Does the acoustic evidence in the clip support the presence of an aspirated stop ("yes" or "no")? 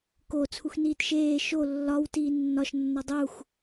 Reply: yes